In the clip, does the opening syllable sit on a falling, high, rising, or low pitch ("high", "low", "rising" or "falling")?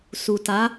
low